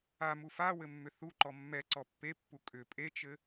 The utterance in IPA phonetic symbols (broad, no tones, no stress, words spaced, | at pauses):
amu fawɘ mːʏθuǃɔ mːɛǀɔ pːepːu kʼʏ pʼet͡ʃɘ